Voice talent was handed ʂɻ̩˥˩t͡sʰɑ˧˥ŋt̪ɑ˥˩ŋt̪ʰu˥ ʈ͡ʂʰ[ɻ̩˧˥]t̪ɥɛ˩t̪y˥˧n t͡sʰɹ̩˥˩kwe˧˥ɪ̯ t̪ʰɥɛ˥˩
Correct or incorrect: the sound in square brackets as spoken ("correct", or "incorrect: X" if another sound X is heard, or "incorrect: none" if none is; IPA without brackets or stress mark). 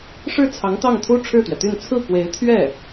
incorrect: ɻ̩˥˩